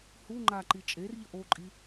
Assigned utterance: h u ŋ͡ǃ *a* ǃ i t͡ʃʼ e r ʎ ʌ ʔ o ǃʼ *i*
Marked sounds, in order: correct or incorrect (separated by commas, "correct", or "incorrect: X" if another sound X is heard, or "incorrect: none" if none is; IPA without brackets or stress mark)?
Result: correct, correct